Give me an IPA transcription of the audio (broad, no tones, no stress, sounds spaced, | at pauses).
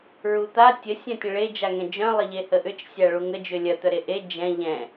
ɹ u t̪ a tʲ ə sʲ œ̃ tʲ ə̃ ɭ e d͡ʒ a ŋ ɛ̃ d͡ʒ œ̃ lˠ ɪ ʎ e h ə ʔ ʏ t͡ʃ sʲ a ɭ u ŋ ə d͡ʒ ʏ lʲ ɐ t̪ œ ɾ e ʔ e d͡ʒ ɛ̃ ʎ ɛ̃